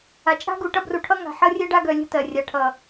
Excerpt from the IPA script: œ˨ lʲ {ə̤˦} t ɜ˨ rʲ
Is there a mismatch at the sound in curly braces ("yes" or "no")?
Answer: no